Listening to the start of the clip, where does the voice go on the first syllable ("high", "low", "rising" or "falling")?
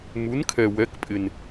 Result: rising